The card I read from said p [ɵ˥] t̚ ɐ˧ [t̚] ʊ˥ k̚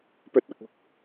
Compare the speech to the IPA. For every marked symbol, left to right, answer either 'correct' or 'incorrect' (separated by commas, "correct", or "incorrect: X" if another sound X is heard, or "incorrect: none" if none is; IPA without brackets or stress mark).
correct, incorrect: k̚